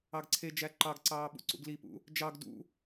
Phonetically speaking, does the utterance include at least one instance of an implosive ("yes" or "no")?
yes